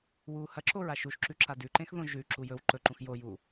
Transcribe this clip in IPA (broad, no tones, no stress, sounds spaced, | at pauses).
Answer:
w uː h ɐ ǁ o ɹ a ʃ u ʃ ǁ ʉ ǁ a d ʉ ǃ ẽ x ð õ ʒ ʉ ǁ u j ɵ w ǃ ɵ ǃ ũ x j o j u